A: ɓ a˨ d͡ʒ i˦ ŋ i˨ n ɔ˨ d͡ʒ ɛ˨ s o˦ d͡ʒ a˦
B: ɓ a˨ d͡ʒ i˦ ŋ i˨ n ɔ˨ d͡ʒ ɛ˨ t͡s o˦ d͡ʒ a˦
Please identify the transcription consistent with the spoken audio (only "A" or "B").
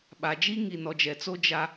B